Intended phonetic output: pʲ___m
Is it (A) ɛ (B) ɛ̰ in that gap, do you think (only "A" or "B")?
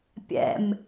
B